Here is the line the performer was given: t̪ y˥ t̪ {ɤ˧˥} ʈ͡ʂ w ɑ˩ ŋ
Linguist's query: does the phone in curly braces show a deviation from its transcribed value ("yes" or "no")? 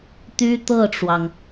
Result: yes